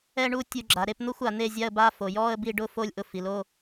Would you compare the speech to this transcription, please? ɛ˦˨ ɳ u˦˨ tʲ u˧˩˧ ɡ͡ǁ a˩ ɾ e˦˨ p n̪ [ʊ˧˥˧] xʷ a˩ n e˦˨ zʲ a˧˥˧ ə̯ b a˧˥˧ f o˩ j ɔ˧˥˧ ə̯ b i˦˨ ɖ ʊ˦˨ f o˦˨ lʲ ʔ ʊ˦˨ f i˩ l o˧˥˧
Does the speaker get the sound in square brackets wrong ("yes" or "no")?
no